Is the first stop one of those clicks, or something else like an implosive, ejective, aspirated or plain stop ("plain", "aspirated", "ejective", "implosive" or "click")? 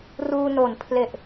aspirated